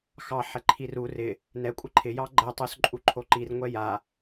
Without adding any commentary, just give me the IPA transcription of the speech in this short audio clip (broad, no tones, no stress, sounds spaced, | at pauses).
x ɑ ħ ɛ ǃʰ i r u r ɪ | n ɛ kʷʼ ɪ ǃʰ ɪ j ɑ ɡ͡ǃ ɛ tˤ u s ǃʼ u ǃʰ o ǃ i r ŋʷ ɛ j a